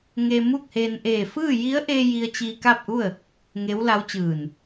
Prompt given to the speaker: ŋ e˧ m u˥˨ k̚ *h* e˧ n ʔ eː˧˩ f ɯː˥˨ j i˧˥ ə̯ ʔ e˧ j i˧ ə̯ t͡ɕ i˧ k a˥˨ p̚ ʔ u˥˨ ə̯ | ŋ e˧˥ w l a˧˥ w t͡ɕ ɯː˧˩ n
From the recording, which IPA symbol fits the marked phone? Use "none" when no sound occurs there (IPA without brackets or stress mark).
h